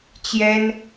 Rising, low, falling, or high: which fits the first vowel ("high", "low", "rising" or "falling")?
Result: high